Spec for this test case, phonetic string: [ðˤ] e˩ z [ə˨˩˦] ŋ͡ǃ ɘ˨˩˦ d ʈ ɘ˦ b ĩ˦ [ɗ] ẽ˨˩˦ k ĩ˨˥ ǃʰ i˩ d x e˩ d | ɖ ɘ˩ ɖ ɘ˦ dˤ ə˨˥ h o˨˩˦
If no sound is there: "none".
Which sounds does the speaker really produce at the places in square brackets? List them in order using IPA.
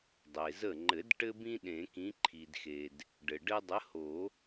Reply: dˤ, ə˧˩, ɗ

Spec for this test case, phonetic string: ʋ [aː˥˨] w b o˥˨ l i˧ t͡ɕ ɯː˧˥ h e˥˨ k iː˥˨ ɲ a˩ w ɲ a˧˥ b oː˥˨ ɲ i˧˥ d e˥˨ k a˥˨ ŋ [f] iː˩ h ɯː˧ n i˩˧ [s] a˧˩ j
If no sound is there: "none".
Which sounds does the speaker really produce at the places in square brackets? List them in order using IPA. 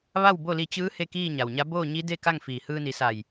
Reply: a˥˨, f, s

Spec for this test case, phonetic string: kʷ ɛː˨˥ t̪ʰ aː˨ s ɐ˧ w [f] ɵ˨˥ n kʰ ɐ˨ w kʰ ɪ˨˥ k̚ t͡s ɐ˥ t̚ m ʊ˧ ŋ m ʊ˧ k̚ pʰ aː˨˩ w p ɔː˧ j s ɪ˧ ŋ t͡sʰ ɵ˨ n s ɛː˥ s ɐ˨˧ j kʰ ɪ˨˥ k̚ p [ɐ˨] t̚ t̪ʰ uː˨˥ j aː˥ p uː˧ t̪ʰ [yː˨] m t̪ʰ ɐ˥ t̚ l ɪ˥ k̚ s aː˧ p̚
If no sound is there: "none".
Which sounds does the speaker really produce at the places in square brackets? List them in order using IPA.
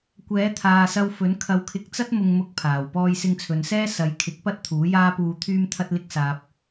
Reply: f, ɐ˥, yː˥

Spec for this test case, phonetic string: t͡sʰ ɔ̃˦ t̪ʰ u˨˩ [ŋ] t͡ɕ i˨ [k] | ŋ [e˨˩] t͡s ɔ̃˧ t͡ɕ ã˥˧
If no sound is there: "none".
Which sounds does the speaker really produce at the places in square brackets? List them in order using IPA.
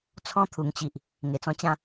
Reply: ŋ, ʔ, e˨˩

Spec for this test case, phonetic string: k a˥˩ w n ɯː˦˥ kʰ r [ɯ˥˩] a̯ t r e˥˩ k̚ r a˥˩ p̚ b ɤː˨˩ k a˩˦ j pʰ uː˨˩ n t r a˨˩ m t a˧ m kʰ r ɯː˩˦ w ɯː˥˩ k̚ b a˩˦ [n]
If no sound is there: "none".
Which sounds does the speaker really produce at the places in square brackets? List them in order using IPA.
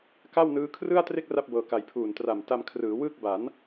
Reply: ɯ˥˩, n

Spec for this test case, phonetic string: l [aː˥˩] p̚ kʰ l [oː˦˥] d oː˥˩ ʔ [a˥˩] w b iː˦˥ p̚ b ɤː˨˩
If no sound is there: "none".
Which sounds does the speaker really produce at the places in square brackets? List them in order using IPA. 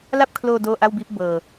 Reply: a˥˩, oː˧, a˥˩

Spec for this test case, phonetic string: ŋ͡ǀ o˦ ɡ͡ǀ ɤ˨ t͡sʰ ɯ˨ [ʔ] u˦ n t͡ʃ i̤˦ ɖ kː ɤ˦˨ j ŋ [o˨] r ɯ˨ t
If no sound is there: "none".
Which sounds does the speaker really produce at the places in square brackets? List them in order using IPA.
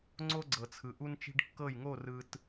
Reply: ʔ, o˦˨

